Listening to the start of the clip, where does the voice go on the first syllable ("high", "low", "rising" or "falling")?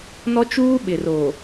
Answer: high